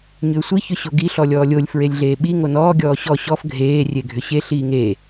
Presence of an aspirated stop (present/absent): absent